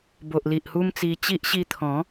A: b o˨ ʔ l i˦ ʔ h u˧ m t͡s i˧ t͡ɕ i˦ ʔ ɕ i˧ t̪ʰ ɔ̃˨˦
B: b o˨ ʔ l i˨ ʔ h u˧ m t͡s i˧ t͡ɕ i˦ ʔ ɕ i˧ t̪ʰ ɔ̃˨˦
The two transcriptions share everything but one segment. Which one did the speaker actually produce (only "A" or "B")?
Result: B